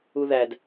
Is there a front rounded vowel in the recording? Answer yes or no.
no